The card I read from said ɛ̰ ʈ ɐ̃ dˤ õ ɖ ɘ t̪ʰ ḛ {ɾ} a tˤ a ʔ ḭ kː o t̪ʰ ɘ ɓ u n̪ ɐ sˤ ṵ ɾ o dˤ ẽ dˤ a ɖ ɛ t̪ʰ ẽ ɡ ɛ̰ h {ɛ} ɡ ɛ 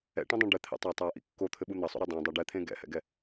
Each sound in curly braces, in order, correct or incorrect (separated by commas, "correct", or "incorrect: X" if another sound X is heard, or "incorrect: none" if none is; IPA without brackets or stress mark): incorrect: tˤ, incorrect: ɛ̰